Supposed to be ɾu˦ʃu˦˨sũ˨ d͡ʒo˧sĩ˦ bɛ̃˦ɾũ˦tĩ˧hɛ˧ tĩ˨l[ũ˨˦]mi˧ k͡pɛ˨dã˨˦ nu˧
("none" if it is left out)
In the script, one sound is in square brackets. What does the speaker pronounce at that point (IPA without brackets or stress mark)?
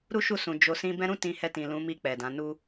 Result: ũ˨˦